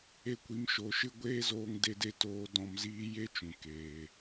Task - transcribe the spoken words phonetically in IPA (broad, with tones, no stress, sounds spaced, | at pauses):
e˧ kʷ i˨˦ m ʃ o˨˦ ʃ ɨ˦ ɡʷ eː˦ z oː˧ ŋ d e˧ d e˧ t oː˧ d ɔ̃˧ m z iː˦ j e˦ t͡ʃ ũ˨ k eː˨